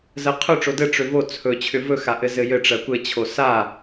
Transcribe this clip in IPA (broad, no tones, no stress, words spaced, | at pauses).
zɜqʰɵ ʈ͡ʂodɘ ʈ͡ʂʏvo t͡sʰɵ t͡ɕʰʏvɵ xaʔɘzɘjɘ ʈ͡ʂɜkʷɘ t͡ɕʰosa